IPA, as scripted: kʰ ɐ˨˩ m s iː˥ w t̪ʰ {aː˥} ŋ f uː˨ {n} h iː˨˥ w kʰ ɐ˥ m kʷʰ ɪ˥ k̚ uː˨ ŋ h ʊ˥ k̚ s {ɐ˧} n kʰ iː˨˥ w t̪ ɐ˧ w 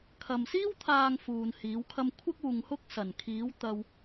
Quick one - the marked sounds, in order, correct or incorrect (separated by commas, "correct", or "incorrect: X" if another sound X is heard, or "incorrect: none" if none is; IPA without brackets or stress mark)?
incorrect: aː˨, correct, incorrect: ɐ˨˩